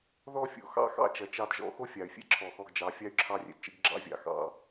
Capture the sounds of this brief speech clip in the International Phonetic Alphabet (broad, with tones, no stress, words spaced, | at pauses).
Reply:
ðɔ˥˧fʲo̰˨˩ xɑ̰˥˧xɑ̰˥˧ t͡ʃɐ˨˥t͡ʃɑ˥˧dʒɔ̰˥˧ xo˥fʲɑ˨˩y̯fʲḛ˥ ǁʰɔ˨˩xɔ˧ɡd͡ʒɑ˨˥ fʲɑ˥y̯ǁʰɑ˥˧rʲḛ˧dt͡ʃḛ˥ɡ ɡ͡ǁɑ̰˥vʲɑ̰˧ xɑ̰˥˧